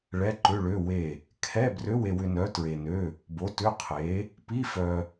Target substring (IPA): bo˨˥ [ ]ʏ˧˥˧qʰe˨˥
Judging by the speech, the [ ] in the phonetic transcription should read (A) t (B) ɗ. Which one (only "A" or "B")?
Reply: A